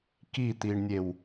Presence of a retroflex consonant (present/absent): present